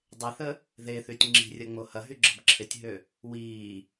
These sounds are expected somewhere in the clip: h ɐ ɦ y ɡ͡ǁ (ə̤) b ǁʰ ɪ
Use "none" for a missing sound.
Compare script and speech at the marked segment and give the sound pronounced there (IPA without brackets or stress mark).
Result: ə̤